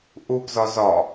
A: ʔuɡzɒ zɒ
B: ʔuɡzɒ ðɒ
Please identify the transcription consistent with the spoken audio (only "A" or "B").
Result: A